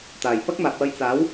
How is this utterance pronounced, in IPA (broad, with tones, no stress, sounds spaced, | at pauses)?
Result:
t̪ aː˨˩ j p ɐ˥ k̚ m aː˨ p̚ w ɐ˧ j t͡s aː˨˥ w